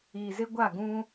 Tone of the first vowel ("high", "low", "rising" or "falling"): low